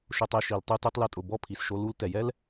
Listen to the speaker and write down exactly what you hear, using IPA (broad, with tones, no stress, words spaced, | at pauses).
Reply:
ʃʊ˧tˤe˧ʃi˨l tˤu˧tu˧tˤ lɛ˧tʼʊ˨ bɔ˦˨pʰi˨sʃo˧ lu˦l tɛ˨jɛ˦l